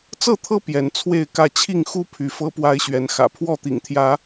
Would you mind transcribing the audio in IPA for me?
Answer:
t͡sɤ˥˨t̪ʰɤ˦ pjɛ˨˦nt͡sʰwe˥˨ɪ̯kä˥˨ t͡ɕʰi˥˨ŋxu˦ pʰy˨˦fɤ˦pwa˦ɪ̯ɕɥɛ˨˦n xä̰˨˩pʰwɔ˥˨t̪ḭ˨˩ŋt̪ʰjä˨˦

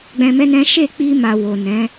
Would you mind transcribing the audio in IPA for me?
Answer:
ɡ͡bɛ̃˧mɛ˦nɛ̃˦ ʃe˦˨k͡pi˧ma˨ wo˨nɛ̃˨˦

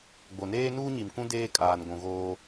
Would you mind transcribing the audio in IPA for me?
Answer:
ɡ͡bo˨neː˦ nuː˦ɲi˨mkũ˦ deː˦kʼaː˨n ɡʷũ˨ɣoː˦

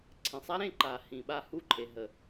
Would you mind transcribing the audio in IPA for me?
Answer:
ǀʰẽ˨sˤa˦ɾẽ˧ǃa˨ hĩ˨ɓa˧ hu˦˨ǃʰe˨ɦə˨

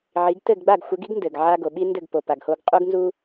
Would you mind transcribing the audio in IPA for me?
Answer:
ʕi˩˥ɡ tɘ˥˩ɡɡ͡ba˥˩ɡxʷɘ˩˥ɡi˥ɡ ndɘ˩ɡʕa˧ ɡo˩ɓi˧ ndɘ˥˩ɡpo˩pa˩ɡho˧ɡ qʼu˥ɡnzu˥

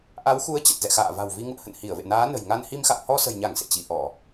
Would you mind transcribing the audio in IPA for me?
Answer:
ʔa˨˦wxu˨˦ə̯t͡ɕə˨˩t̚ zɛ̰˧˨xa̰ː˧˨va̤˨˩wvi˧ ŋṵ˧˨ə̯hə̰˧˨n hi˧˩ə̯vḛ˧˨naː˨˦ nə̤˨˩jŋa˧nhi˧m xa̰˧˨whɔ˧sə̤˨˩jɲa˧˩ŋ sḛ˧˨t͡ɕi˧˩ʔɔ˧˩˨

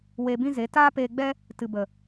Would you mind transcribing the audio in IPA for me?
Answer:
we˧bĩ˦ze˨˦ taː˦peː˧ɡ͡bɛ˦ | tɨ˨bə˨

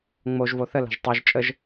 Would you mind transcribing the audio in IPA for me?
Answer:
ŋ͡moʒ voθə la̤ʒtˤaʒ t͡ʃʼəʒ

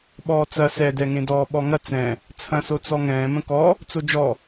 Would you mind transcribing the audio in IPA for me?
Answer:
ɓɔːt͡sɐ sɛdɛŋẽdɔː ɓɔŋɐ t͡sɛ̃ | t͡sʰɐ̃so t͡sɔŋɛ̃ː mə̃kɔ | t͡sod͡ʒɔ

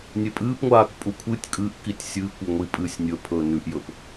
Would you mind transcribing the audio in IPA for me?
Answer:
nʲepʼɨːpŋʷaːk pʼukʷʰɨtʲ kʼɨʔkitʲ sʲɨːkʷ oŋʷi pʼɨːsʲnʲɵ pʰɵːnʉʔjɵp

